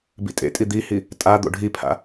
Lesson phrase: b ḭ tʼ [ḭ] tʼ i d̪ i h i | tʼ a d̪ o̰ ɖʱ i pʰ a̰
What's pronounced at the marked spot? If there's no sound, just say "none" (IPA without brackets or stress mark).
ḛ